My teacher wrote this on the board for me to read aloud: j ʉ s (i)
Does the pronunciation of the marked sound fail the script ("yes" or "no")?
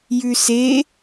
yes